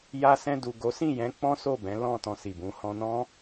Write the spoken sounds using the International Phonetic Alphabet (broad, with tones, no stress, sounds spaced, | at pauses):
j a˧ s ɛ̃˧ d u˨ ɡ o˨˦ s ĩ˦˨ j ɛ̃˨˦ k͡p ɔ̃˦ s o˦˨ b ɛ̃˨˦ l ɔ̃˦˨ t ɔ̃˧ s i˨ b ũ˨˦ h ɔ̃˧ n ɔ̃˦